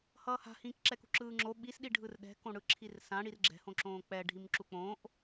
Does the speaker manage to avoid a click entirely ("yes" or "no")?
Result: no